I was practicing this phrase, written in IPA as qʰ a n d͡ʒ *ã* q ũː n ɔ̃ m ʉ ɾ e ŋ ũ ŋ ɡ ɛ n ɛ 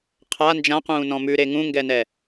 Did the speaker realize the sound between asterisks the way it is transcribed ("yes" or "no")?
yes